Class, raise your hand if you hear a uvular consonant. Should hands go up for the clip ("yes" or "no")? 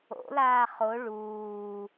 yes